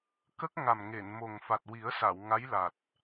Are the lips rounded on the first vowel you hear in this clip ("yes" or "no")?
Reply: no